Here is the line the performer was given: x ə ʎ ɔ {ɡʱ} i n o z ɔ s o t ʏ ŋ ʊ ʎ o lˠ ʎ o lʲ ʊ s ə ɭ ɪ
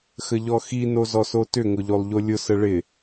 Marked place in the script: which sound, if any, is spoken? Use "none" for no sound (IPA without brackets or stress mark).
x